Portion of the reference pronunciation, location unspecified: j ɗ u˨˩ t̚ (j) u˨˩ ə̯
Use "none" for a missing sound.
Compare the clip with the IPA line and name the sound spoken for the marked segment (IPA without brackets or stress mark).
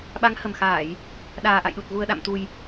ɣ